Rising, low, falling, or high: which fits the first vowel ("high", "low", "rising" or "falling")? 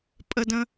high